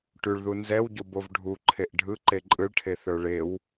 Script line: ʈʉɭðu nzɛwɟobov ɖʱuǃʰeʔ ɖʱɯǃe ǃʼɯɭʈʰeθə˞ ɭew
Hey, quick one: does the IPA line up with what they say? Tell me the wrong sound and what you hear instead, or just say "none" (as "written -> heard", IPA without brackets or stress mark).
none